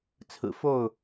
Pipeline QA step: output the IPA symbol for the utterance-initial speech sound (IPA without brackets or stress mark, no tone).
t͡sʰ